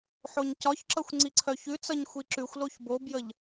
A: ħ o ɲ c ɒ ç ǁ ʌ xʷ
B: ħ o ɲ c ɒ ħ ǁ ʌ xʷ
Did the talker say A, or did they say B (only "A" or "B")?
A